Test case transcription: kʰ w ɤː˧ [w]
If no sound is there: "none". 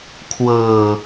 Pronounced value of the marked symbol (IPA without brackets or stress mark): none